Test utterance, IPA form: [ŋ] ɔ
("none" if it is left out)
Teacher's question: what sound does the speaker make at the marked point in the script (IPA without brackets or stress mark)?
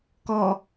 k